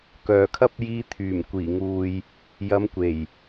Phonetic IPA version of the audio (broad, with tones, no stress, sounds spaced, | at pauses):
k œː˨ kʰ ɐ˥ p̚ j iː˧ t̪ʰ yː˨˩ m kʷ iː˨˩ ŋ uː˨ j | j ɐ˨˧ m kʷ e˨˩ j